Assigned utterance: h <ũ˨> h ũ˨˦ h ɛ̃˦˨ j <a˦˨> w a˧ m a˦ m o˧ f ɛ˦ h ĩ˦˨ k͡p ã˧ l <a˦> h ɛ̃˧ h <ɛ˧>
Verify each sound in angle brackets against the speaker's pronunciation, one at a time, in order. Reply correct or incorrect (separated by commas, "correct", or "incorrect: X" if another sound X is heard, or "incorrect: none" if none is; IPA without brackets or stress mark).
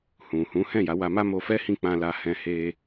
correct, incorrect: a˨˦, incorrect: a˧, incorrect: e˧